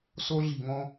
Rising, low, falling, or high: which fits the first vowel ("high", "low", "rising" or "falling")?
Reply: high